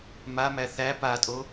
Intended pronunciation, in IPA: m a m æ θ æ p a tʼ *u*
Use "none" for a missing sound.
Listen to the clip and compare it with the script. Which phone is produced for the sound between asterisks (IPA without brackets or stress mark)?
o